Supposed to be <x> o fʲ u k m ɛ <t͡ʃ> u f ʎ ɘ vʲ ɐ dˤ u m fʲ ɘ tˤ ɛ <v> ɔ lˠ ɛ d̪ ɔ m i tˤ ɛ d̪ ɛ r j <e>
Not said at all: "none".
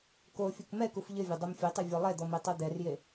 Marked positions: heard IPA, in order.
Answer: k, k, vʲ, e

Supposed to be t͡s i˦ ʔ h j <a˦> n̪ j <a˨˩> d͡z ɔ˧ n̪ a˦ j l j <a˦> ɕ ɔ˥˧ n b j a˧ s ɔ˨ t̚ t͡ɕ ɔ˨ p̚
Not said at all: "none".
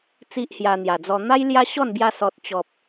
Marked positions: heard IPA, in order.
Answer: a˧, a˨˩, a˦

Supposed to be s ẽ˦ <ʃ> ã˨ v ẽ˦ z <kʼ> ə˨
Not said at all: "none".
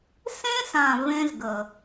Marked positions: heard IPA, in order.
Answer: s, ɡ

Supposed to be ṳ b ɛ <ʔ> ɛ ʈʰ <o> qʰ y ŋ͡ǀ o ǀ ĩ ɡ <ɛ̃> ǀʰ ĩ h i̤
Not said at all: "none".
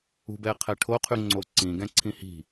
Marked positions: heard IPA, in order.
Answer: qʰ, o, ɛ̃

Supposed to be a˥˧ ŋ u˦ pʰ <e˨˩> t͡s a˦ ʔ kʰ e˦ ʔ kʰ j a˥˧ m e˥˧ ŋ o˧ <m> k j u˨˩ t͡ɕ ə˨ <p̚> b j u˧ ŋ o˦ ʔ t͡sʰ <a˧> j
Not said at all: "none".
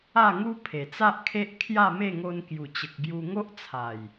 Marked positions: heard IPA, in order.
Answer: e˨˩, n, k̚, a˨˩

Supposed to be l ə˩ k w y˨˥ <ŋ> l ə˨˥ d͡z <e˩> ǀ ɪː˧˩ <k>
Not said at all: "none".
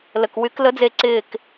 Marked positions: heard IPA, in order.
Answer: k, e˧˩, k

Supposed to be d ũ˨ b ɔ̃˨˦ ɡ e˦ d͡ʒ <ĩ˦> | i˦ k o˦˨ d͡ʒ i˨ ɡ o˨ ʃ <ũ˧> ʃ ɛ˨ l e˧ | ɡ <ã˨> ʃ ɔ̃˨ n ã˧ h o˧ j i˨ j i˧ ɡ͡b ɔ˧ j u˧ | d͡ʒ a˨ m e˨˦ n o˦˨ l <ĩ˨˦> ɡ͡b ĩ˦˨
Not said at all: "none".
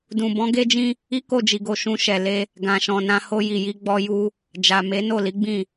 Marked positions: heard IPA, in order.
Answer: ĩ˦, ũ˧, ã˨, i˨˦

